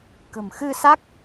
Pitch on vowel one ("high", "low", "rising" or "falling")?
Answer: low